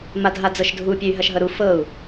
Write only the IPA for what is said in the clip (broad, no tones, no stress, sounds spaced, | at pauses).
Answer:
m a dʱ a d͡z ɤ ʃ dʱ u pʲ ø y̯ ɦ ɐ ʃ ɦ ɤ ɾ u f ɤ u̯